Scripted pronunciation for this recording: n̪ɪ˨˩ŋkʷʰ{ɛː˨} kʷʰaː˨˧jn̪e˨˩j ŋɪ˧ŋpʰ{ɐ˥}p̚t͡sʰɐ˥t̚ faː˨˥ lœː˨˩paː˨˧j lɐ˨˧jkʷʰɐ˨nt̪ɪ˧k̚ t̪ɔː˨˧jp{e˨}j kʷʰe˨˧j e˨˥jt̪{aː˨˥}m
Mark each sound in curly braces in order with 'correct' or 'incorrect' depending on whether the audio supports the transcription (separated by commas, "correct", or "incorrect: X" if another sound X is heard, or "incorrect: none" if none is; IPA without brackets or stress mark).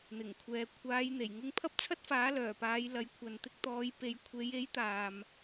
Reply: correct, correct, correct, incorrect: aː˨